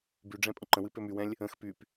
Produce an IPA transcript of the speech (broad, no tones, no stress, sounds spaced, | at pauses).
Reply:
b y ɖ͡ʐ ɛ̃ pʼ ə̃ ǃ ə̃ w ɨ p ø m y w ɛ̃ lʲ | ə̃ x p y p